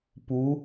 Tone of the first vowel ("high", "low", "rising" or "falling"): rising